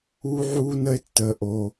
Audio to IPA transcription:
uː˦ ʕ uː˦ n ə˦ e̯ tː əː˧ ʔ o˧

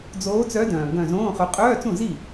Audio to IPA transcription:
d͡z oː˨˦ t͡s œ˨˦ d œ̃ː˩ ɡ œ̃˧˩ z õː˧˥˧ χ œ˨˦ qʼ œː˧˥˧ t͡s ũ˥˩ z i˥˩

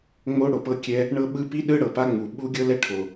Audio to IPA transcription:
ŋ͡m o˥ ɽ o˩ p ɤ˥ kʲ ɛ˥ | ɳ ɤ˥ ɓ ɯ˥ p i˥ ɗ ɯ˥ ɽ ɤ˩ p a˥ ŋ͡m u˩ ɓ u˥ ɡʲ ɤ˥ l ɛ˥ ʈʰ o˩

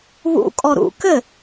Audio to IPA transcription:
β ṵ kʼ ɔ ɾ ṵ k ɘ

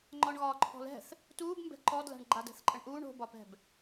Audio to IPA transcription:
ŋ͡ǃ ɒ ɳ ɣ ɒː ǃʰ ɔ̤ l ɛ̤ θ | t uː b m b ɛ̤ ǃ ɔ d l a̤ ɳ ɡ͡ǃ a d ɛ̤ θ ǃʼ ə ɳ ʔ uː ɳ o̤ b ɒ p ɛ̤ b

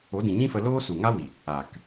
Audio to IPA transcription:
o˨˦ d ĩ˨ ɲ ĩ˦ f ə˧ l oː˦ s u˨ ŋ a˦ w i˨ | aː˨ k

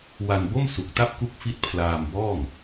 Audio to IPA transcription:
w a˧ n b o˥˩ m s u˨˩ k̚ t a˥˩ p̚ k u˦˥ k̚ f i˦˥ t̚ pʰ l aː˧ m b ɔː˥˩ ŋ

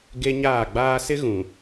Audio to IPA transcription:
ɡ e˦ ɲ aː˦˨ ɡ͡b aː˦ s ɪ˦ ɣ ũ˨

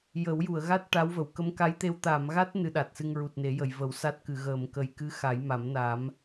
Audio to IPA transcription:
j ə˨˩˦ w j u˨˩˨ ə̯ ɣ a˦˥ t̚ ʈ a˧˥ w v ə˨˩˨ w k ə˧˥ m k a˧˥ j t̪ e˧ w t̪ a˨˩˨ m ɣ a˦˥ t̚ n ɨ˧ ɗ a˨˩ t̚ s ɨ˧ ŋ ɹ u˨˩ t̚ n e˨˩˦ j ə˨˩˨ j v ə˨˩˦ w s a˦˥ t̚ k ɨ˨˩˨ ɣ əː˨˩˨ m k ə˨˩ j k ɨ˧˥ x a˨˩˦ j m a˨˩˦ m n a˨˩˦ m

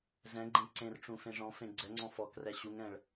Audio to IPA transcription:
z ɛ̃ ɡ͡ǃ ẽ ǀ ẽ r ʈ͡ʂ ũ f ẽ ʐ ɔ̃ f ẽ ɡ͡ǀ ɛ ŋ͡ǀ ɔ̃ f ɔ k r ɛ ɕ u ŋ ɛ̃ ɭ

